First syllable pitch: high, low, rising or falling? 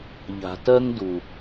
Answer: low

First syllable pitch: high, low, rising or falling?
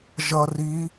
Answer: low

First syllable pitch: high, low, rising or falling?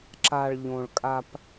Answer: low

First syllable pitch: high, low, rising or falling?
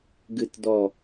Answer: low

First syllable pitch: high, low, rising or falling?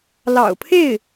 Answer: low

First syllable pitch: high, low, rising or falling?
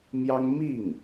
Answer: high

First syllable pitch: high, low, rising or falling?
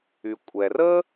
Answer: low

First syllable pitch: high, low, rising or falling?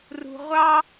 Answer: low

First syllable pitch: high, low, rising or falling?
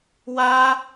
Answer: high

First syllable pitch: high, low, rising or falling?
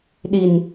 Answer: low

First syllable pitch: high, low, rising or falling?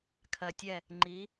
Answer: low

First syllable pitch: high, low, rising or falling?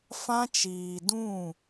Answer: high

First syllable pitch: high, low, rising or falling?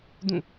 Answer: falling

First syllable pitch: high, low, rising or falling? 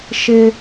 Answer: high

